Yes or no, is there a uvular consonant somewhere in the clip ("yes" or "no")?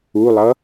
no